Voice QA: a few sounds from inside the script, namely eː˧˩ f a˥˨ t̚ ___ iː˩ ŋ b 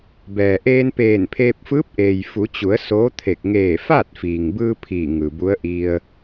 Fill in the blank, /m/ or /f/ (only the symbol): f